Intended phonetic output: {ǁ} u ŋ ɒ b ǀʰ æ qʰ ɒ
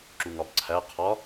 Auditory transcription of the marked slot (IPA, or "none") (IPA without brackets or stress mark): ǁ